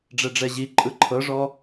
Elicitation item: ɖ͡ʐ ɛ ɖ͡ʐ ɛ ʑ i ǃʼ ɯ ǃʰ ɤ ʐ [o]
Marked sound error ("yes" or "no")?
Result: yes